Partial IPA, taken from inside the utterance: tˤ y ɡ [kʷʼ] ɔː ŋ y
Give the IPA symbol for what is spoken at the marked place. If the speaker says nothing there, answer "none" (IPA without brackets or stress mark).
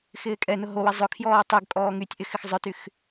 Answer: kʼ